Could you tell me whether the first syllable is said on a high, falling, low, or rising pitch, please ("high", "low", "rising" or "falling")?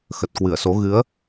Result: low